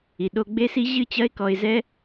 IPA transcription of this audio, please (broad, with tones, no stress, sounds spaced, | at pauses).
i˩ ɗ o˧ ɡ͡b e˥ s i˥ ʑ ɨ˥ t͡ɕ ɐ˥ ɪ̯ k ɔ˧ ɪ̯ z ɛ˥